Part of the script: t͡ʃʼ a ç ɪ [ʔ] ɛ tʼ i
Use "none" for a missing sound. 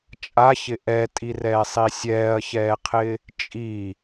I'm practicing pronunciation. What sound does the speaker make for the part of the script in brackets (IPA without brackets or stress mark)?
ʔ